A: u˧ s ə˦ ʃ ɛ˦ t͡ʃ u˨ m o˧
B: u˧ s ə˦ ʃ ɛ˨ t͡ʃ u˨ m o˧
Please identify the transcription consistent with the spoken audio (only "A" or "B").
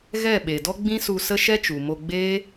A